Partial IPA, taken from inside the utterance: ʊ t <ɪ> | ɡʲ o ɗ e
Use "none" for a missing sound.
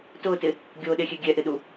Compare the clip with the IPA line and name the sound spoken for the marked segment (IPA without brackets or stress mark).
ɪ